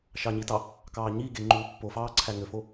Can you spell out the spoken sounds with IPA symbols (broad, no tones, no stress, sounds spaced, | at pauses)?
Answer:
ʃ ɑ ɲ i t ɑ | k ɑː ɲ i ɡ e ŋ͡ǃ uː pː o f ɑː ǀʰ æ ŋ ø f o